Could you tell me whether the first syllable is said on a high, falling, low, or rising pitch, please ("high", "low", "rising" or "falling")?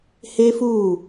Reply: high